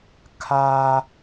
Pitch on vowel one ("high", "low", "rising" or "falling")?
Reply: high